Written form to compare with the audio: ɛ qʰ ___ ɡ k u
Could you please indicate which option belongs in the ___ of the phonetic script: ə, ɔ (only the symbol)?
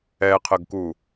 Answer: ə